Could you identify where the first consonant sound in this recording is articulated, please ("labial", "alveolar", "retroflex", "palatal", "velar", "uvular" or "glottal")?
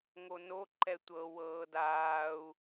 velar